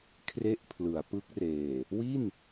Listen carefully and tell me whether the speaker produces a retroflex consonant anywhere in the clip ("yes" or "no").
no